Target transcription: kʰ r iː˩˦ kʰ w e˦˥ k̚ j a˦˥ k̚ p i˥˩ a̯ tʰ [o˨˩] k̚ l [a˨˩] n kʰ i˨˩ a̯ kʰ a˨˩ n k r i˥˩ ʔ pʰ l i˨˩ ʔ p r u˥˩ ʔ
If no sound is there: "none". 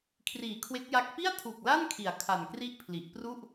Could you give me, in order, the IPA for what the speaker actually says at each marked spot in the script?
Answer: u˨˩, a˥˩

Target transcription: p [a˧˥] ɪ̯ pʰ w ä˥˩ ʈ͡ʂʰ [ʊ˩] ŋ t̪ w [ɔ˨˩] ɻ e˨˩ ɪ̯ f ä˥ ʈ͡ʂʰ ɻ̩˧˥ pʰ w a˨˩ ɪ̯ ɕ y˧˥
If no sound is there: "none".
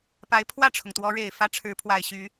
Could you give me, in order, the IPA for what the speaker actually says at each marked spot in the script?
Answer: a˧˥, ʊ˩, ɔ˧˥

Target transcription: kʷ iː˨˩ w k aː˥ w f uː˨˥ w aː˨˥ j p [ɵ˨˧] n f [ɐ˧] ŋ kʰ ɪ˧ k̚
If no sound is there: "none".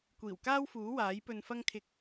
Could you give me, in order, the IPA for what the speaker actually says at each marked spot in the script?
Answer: ɵ˧, ɐ˥

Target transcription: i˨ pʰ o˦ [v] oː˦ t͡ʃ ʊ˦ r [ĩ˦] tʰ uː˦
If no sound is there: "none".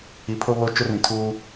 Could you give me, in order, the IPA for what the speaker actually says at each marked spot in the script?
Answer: β, ĩ˨

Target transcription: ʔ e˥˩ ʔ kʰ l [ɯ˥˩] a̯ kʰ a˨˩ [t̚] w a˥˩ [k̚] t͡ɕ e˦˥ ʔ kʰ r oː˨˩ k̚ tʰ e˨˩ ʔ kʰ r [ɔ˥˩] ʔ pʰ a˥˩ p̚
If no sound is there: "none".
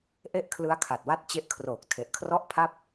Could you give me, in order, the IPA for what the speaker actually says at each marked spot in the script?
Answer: ɯ˦˥, t̚, t̚, ɔ˥˩

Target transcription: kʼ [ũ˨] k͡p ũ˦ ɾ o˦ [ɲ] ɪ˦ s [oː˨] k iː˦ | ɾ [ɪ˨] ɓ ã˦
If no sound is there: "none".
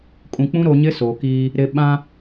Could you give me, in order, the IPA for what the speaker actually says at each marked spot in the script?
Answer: ũ˨, ɲ, oː˨, ɪ˨

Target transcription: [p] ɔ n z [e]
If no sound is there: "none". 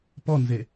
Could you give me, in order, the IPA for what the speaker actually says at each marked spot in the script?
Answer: p, e

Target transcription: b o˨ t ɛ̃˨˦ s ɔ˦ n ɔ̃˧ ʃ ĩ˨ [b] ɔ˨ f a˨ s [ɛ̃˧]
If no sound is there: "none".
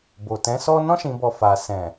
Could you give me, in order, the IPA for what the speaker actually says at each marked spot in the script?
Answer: b, ɛ̃˨

